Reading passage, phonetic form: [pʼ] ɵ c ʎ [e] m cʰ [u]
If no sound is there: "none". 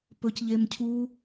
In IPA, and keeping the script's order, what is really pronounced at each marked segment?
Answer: p, e, u

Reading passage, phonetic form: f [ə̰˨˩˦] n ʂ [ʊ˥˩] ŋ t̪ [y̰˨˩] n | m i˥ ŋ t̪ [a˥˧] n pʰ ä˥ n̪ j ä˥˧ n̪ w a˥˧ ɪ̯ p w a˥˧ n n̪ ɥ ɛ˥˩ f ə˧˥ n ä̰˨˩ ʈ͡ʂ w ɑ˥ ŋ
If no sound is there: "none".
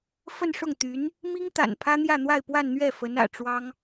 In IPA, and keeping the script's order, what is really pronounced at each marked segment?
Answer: ə˥˧, ʊ˥˩, y˧˥, a̰˨˩

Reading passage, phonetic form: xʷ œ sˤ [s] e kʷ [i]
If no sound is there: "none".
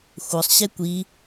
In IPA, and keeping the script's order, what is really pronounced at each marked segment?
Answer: ɕ, i

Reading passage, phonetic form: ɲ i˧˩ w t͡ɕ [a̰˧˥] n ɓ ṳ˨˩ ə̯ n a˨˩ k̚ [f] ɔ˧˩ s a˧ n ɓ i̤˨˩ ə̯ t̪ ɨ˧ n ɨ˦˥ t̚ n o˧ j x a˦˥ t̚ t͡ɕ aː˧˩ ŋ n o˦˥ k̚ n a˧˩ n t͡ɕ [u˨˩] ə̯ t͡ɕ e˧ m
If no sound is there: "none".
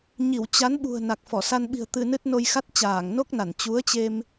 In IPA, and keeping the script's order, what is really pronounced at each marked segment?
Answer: a˨˦, f, u˨˦

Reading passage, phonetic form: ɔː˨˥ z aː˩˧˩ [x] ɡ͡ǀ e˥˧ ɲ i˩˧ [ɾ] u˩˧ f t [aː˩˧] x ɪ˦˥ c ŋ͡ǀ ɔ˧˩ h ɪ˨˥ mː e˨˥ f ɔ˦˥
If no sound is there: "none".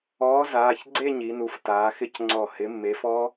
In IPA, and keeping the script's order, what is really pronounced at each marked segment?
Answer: ç, n, aː˩˧

